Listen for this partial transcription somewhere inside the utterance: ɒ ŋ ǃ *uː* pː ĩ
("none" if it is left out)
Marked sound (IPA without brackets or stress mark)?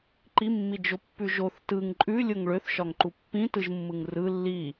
u